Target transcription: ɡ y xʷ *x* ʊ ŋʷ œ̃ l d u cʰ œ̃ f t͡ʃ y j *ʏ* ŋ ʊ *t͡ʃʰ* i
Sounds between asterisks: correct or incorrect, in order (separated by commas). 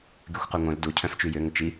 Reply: incorrect, correct, incorrect